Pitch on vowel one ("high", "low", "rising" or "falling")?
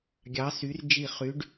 rising